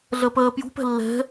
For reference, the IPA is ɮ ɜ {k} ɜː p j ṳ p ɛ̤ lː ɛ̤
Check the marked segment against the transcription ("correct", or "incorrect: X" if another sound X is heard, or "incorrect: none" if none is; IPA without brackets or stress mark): incorrect: p